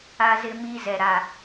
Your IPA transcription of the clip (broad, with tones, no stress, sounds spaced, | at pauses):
a˦ z ɪ˦ m iː˦ z ɛ˨ ɾ a˨